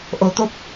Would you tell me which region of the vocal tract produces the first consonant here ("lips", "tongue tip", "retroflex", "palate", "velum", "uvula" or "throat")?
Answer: throat